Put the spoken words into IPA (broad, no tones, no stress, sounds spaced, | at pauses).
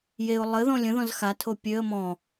j e ʊ̯ lˠ ə ð ɔ̃ lʲ ə̃ ð ɔ̃ z x a tʰ o pʲ ø ə̯ m ɔ̃